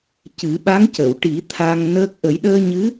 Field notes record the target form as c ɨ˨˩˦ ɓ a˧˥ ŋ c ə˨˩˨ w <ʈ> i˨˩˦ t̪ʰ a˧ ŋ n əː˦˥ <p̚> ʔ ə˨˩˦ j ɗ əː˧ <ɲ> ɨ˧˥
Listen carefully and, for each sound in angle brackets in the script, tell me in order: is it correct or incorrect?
correct, incorrect, correct

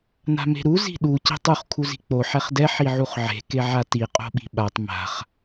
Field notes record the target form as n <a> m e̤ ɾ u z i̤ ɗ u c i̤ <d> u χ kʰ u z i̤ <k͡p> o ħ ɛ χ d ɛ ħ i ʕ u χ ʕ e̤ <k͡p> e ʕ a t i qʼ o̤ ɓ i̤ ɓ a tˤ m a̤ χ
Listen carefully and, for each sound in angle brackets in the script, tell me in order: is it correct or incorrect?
incorrect, incorrect, correct, incorrect

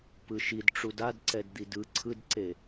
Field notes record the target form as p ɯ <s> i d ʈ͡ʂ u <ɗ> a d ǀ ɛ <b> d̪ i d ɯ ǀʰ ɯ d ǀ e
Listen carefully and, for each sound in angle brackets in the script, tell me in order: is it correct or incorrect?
incorrect, incorrect, incorrect

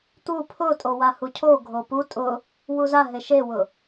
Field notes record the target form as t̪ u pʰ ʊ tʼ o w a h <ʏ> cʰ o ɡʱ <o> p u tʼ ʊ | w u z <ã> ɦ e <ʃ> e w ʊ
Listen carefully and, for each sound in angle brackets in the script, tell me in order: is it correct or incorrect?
incorrect, correct, incorrect, correct

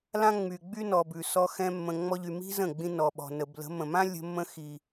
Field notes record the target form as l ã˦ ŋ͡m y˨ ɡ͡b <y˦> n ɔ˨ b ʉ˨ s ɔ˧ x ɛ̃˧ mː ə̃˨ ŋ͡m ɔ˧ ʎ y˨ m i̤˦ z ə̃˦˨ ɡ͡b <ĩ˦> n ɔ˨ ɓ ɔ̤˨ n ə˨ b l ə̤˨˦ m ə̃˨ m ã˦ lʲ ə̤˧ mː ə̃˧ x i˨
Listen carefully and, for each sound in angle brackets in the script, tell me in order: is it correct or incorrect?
correct, incorrect

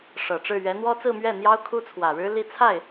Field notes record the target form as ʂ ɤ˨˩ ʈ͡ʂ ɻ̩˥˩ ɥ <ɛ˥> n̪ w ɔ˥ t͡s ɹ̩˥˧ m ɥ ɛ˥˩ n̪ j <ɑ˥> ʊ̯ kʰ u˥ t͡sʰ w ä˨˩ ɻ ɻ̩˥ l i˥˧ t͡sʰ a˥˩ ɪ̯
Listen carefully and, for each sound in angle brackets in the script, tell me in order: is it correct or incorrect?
incorrect, correct

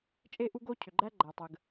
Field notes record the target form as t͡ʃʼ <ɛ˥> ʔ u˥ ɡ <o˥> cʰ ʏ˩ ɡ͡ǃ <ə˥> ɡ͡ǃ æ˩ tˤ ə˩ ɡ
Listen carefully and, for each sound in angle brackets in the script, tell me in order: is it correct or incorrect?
incorrect, correct, incorrect

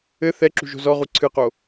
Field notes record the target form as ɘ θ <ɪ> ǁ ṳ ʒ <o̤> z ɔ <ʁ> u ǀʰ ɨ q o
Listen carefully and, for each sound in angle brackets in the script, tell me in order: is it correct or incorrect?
incorrect, correct, correct

